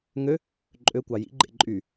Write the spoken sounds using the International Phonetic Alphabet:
ŋø | ǃʼøkʷɑ jḭɡ͡ǃḛ ǃʼy

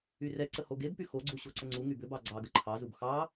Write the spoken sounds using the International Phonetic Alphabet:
yrɛ ǀəhoɡebpy xoɡ͡ǀu ɕoǀəŋ͡ǀu ŋybʏbɑ ɡ͡ǀɑɡə ǃʰɑzub xɑ

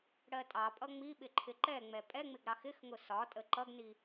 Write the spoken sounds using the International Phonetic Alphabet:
ɽɜtʼɑpʼʌ ŋ͡miɓɪ ǃʰɪǃɛŋ͡mɛ pʼɛŋ͡mɪɡ ɾɑxɪxŋʊ sɒtʼə ǃʌɡni

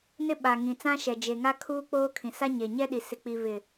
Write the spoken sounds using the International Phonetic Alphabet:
nɪ˦ɓa˨ŋĩ˨ t͡sã˦ʃɛ˨d͡ʒe˨ŋa˦ kʰuː˦k͡poː˦kʰĩ˨sa˦ ɲe˨ɲɛ˦ɗi˨ sɪ˨k͡pi˨ βɪ˨

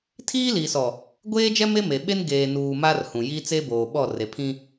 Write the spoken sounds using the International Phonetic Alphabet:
tʰiː˦li˨sɔ˨ | ɡʷeː˦d͡ʒɛ˦ me˦ me˨ɓe˦n ɡeː˨nuː˨ ma˦rhũ˨ji˦ t͡se˦boː˨ɓɔ˦˨ re˨pʰĩ˦

